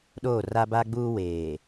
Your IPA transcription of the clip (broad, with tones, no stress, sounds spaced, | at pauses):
ɗ oː˦˨ r a˦ b a˦ ɡ͡b uː˦ w eː˨